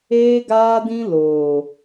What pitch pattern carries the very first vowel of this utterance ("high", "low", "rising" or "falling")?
high